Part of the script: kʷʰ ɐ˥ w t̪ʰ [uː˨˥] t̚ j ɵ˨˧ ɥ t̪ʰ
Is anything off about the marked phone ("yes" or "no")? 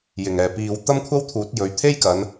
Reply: no